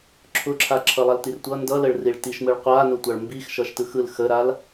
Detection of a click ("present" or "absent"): present